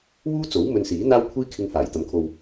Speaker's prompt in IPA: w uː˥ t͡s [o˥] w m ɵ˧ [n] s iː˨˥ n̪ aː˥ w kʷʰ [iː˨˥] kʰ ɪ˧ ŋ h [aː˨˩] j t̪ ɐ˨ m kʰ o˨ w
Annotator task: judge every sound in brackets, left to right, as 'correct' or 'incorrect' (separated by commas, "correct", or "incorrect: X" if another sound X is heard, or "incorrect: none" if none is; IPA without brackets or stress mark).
incorrect: o˨˥, correct, incorrect: iː˥, correct